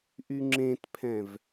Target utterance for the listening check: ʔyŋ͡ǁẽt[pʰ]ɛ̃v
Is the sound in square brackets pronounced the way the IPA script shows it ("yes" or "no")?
yes